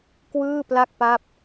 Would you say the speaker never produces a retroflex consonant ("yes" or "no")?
yes